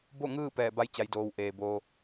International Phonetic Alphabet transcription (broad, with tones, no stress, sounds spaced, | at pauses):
b o˥˨ ŋ ɯː˥˨ p ɛː˧˩ b a˧˥ j t͡ɕ a˩˧ j d oː˩ w ʔ eː˩ b oː˧